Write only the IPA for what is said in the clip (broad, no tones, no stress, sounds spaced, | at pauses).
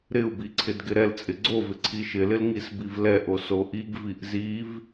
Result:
ɾ ɪ u̯ b i ǀʰ ɪ d ɡ ɪ ɾ ɛ l t͡sʼ ɪ ɡ͡ǀ o v ɪ ǀʰ i ʃ ɪ l ɪ l ŋ i s b i v l ɛ ʔ o s o ʔ i ɡ v i ʔ z i v